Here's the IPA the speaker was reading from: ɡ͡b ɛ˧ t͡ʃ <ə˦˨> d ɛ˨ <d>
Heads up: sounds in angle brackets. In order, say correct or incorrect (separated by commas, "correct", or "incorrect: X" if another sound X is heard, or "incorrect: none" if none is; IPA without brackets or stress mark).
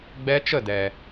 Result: correct, incorrect: none